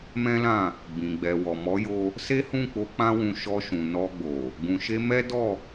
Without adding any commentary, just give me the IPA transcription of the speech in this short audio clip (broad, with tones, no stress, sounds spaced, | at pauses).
m ɛ̃˦ l ã˦˨ | b ĩ˨ ɡ͡b ɛ˨ w ɔ˨ m ɔ˨˦ j o˧ | s e˦ h ũ˦˨ k͡p o˧ k͡p ã˦ w ũ˧ ʃ ɔ˧ ʃ ũ˨ n ɔ˧ ɡ͡b o˨ | ɡ ũ˨ ʃ e˧ m ɛ˦ d ɔ˦˨